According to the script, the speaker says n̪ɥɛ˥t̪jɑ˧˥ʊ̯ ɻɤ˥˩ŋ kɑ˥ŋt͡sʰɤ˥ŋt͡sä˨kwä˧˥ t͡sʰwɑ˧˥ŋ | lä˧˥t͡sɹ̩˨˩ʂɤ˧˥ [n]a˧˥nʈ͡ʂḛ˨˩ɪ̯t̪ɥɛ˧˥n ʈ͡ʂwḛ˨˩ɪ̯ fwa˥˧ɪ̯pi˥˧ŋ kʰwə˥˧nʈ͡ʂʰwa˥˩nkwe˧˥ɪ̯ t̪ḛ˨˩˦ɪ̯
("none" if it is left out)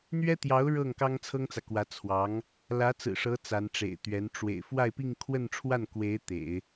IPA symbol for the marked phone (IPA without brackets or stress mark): t͡s